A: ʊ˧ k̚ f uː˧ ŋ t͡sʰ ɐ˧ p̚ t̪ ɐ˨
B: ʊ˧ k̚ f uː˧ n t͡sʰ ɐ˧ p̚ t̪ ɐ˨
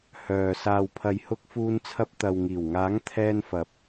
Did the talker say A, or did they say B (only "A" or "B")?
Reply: B